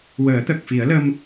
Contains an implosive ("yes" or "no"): no